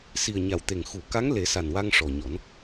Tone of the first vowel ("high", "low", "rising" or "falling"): low